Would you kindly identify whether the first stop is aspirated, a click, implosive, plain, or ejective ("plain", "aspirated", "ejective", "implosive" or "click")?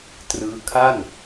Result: plain